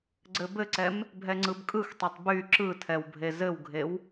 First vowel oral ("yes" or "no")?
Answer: yes